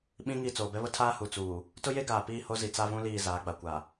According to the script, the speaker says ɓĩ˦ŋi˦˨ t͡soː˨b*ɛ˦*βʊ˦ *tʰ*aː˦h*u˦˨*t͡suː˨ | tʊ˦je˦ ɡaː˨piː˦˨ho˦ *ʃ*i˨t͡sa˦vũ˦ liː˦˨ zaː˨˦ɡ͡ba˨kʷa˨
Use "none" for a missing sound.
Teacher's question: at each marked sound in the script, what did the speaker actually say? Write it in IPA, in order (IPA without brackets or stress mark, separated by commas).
ɛ˦, tʰ, u˨, z